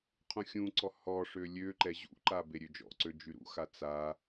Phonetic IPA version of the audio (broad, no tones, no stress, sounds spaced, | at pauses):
qʰ ũ xʲ ũ ǀ ɔ h ɔ ʂ ø lʲ ø ǃ ɛ ʑ ṵ ǃ a b e ɾʲ ø d͡ʒ ɔ̰ ǀ ø d͡ʒ y ɾ ṵ x a t͡s a